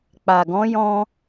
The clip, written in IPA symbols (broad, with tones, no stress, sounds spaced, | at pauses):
k͡p a˨ ɡ ɔ̃˨˦ j ɔ̃˧